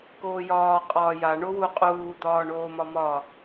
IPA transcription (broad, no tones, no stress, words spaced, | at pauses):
koːjɒː qʼɒːja ɳowu qʼuː d̪ɒːɳoːmɒmɒ